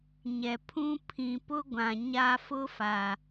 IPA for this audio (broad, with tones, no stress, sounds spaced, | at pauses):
ɲ ɛ˨ pʰ ũ˦ pʰ ĩ˨ p ʊ˦ ɡʷ ã˨ ɲ a˦ f ʊ˦ f a˨